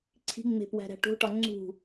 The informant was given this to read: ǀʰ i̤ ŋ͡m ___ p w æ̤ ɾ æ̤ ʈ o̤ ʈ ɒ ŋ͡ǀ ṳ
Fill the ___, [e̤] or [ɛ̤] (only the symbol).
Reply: e̤